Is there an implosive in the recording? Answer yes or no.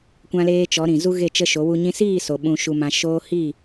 yes